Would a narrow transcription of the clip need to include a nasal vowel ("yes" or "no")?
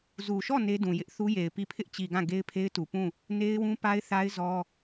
yes